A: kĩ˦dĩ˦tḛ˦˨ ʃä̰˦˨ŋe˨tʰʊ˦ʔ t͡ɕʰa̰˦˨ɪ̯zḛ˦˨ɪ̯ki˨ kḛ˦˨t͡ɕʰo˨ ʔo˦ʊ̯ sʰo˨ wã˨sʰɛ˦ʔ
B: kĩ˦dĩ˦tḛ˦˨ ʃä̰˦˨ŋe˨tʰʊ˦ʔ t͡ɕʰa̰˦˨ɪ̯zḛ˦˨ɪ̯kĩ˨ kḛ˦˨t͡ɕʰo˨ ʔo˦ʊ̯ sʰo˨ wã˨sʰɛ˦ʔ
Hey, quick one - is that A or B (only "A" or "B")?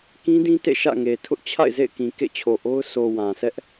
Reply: B